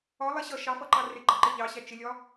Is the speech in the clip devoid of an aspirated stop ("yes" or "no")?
yes